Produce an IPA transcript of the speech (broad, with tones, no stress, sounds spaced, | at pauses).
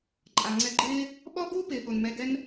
ǃʼ a˨ ŋ͡ǀ ɛ˧ ɡ͡ǃ ɪː˦ | ɓ ɔ˦ ɡ u˦ p ɪː˨ ɠ o˨ n m ɛ˧ ɡ ɛ˦ n